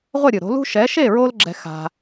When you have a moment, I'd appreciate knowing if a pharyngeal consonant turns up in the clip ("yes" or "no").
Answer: no